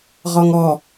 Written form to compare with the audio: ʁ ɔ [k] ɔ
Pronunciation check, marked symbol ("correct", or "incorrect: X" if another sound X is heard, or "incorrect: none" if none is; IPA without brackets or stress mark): incorrect: ŋ